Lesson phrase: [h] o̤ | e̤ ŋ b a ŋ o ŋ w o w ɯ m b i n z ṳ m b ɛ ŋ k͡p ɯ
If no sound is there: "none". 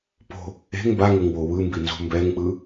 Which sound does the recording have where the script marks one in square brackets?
p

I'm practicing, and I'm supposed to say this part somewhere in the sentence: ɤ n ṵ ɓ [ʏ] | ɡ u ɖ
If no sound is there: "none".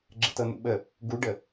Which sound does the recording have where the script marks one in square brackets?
ə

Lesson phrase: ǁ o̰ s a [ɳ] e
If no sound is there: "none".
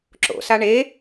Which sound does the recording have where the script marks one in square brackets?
ɳ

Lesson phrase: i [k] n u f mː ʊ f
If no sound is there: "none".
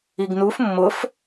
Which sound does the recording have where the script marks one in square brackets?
ɡ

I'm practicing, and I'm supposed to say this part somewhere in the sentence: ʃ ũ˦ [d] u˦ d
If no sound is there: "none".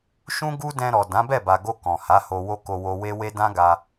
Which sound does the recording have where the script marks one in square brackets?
ɡ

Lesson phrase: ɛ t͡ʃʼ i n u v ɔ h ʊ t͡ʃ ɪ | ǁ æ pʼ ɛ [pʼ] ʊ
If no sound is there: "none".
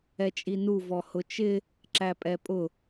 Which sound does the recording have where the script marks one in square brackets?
pʼ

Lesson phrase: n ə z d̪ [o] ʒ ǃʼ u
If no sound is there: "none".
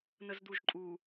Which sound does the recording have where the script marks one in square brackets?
u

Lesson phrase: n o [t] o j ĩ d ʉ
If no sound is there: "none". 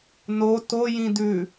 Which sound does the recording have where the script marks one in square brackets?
t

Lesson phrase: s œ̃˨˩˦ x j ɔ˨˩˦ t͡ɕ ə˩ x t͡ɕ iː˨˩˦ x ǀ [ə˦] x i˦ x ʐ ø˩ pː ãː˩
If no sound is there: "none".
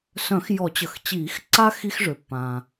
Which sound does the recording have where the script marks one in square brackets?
a˦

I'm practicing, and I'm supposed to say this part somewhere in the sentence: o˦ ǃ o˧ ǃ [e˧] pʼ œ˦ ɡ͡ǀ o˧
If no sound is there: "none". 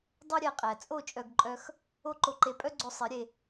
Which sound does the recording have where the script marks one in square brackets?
e˧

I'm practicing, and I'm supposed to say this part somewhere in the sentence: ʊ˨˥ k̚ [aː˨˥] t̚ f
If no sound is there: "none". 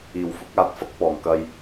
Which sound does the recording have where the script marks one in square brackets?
aː˨˥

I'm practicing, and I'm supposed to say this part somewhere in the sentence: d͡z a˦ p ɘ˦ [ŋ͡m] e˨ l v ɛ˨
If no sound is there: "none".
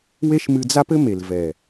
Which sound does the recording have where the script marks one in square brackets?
m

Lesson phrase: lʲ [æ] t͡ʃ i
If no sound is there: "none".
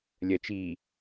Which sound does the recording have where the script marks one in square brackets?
ɜ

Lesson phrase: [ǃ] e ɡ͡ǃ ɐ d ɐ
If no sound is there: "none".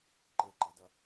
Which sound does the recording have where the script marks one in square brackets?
ǃ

